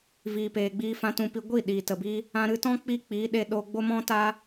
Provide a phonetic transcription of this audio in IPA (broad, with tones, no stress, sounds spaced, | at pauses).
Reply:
v iː˨ p eː˨ ɡ͡b iː˧ f ã˧ t ũ˧ p i˧ ɡʷ i˦˨ ɗ iː˨ t ə˨ b i˦ | ã˧ ɾ ɨ˧ t ɔ̃˦ k͡p i˦ k͡p iː˨˦ ɗ e˧ ɗ o˧ ɡ͡b o˦ m ɔ̃˦ t a˦